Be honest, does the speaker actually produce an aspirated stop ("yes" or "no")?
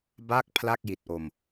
yes